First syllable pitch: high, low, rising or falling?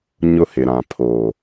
high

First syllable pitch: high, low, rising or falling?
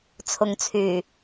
low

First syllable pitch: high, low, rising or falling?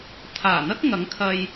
low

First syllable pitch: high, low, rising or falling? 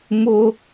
high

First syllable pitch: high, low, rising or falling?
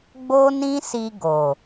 high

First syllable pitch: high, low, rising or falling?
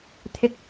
high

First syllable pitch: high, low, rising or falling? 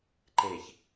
low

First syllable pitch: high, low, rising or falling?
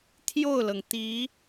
falling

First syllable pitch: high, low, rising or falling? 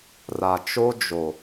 low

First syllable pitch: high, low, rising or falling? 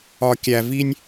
low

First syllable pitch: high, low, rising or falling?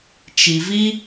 low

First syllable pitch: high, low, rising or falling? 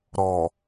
low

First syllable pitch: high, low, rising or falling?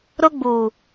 high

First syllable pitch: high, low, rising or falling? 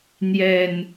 low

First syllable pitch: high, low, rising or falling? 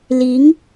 rising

